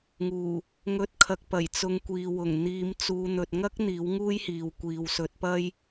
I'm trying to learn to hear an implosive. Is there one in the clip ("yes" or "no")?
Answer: no